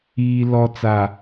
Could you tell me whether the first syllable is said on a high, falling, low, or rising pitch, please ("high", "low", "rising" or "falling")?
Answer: low